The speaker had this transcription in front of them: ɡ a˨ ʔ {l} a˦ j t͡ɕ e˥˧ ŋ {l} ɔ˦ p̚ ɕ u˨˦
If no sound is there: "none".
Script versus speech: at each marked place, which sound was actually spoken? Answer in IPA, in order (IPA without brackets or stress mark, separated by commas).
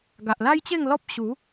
l, l